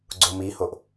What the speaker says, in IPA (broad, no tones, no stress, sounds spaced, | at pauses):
ɡ͡ǀ o m i h o ʔ